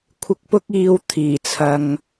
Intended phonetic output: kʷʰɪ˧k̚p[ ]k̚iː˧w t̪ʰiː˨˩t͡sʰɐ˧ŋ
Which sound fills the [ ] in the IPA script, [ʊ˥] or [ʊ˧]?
ʊ˥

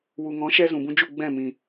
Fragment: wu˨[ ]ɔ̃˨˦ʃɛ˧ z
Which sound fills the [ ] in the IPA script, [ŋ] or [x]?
ŋ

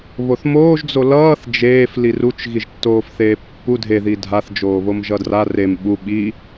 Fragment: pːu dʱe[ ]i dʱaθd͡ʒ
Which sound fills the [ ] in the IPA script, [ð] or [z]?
ð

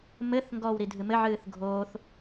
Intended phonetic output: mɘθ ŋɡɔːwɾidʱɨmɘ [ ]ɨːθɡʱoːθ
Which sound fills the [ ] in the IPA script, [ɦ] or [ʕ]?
ʕ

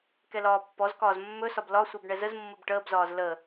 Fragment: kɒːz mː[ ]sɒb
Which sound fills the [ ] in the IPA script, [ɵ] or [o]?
ɵ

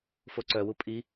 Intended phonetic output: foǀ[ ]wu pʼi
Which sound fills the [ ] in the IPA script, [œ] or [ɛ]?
œ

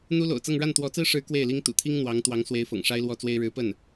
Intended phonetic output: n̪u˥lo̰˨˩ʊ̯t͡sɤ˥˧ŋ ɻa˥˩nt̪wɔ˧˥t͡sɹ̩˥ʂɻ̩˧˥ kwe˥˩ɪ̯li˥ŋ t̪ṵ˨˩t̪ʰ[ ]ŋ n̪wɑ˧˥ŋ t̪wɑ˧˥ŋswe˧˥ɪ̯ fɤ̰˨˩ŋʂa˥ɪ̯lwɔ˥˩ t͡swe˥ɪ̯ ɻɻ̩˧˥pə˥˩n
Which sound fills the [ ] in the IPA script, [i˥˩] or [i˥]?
i˥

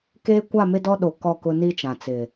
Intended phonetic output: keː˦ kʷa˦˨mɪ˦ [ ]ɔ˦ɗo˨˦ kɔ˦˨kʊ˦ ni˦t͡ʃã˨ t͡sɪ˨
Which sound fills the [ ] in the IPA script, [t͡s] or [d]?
d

